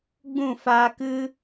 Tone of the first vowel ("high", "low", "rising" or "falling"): falling